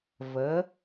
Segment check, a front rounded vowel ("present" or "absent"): absent